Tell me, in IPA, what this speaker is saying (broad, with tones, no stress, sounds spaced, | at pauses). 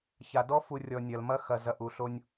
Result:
ç a˨ d ɔ˧ f u˨ rʲ ɔ˨ nʲ ɐ˨ l m ɐ˧ x ɐ˨ z ɐ˨ ʔ u˨ ɬ o˧ nʲ